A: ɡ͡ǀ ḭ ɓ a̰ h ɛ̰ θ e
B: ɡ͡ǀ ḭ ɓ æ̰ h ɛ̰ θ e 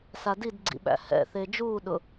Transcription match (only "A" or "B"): B